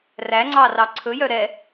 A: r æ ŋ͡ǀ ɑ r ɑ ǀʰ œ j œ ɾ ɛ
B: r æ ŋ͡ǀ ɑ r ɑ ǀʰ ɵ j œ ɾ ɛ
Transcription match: B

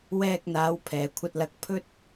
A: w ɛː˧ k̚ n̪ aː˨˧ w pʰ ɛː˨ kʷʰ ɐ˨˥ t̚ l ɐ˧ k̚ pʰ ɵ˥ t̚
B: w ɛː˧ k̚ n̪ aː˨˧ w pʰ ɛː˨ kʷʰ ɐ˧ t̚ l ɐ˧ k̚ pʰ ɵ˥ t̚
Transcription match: B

